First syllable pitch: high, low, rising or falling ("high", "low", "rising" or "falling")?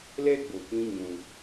high